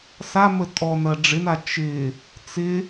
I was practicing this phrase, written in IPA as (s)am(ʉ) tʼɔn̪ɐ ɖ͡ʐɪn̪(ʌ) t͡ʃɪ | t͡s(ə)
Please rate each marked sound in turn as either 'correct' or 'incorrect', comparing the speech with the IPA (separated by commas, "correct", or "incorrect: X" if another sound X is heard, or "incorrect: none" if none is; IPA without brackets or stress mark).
correct, incorrect: ə, incorrect: a, incorrect: ɪ